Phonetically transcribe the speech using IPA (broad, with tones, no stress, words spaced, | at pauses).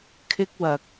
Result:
kʰɪ˥k̚wɐ˧k̚